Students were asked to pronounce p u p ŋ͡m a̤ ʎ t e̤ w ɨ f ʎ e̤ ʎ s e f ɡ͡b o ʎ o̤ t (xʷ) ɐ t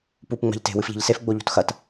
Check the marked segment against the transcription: incorrect: x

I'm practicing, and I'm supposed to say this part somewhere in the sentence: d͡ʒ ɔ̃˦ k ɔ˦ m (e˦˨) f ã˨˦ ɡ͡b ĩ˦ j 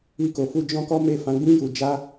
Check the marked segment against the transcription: correct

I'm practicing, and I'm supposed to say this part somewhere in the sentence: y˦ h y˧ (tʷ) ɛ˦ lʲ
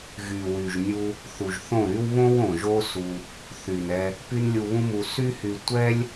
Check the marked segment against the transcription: correct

